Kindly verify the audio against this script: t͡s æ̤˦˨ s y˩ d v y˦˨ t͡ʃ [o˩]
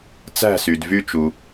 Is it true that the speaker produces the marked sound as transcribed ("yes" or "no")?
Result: no